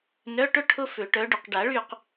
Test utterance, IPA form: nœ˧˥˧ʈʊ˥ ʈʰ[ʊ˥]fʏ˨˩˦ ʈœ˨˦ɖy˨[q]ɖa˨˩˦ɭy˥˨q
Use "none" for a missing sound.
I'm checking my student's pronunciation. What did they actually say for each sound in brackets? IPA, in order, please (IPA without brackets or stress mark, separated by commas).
ʊ˥, q